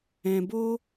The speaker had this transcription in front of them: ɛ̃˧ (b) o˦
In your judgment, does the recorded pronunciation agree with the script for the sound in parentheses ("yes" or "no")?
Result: yes